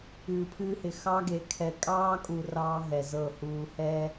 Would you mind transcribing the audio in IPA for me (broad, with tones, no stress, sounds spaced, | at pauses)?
ɨː˨ pʰ ɨː˦ h ɪ˨ x ɑ˦ ɡ e˨˦ kʰ ɛ˨ kʼ ɑː˦ kʼ u˨ r ɑː˦ ɦ ɛ˨ z ɤ˦˨ h uː˨ h ɛ˦